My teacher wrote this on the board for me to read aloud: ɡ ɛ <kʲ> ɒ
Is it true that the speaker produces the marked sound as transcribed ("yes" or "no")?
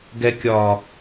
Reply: yes